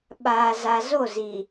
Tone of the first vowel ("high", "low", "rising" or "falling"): low